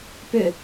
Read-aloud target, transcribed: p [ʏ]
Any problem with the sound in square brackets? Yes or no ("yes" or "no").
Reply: no